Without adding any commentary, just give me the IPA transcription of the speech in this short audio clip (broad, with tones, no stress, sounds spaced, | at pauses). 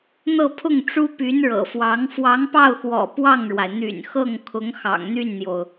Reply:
n̪ ɤ˥˧ pʰ ʊ˥˩ ŋ ʈ͡ʂ u˥ p y˧˥ n ɻ ɤ̰˨˩ f w ɑ˧˥ ŋ f w ɑ˧˥ ŋ p ɑ˥˩ ʊ̯ x w ɔ̰˨˩ p w ɑ˥˩ ŋ ɻ w a˩ ɪ̯ n̪ y̰˨˩ n x ɤ˥˩ ŋ kʰ ʊ˧˥ ŋ x ɑ̰˨˩ ŋ n̪ y˥˩ n n̪ j o˩ ʊ̯